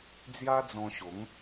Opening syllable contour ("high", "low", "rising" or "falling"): high